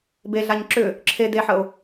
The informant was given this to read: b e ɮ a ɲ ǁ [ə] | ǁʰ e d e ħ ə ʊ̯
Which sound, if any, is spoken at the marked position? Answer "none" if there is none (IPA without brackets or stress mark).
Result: ʏ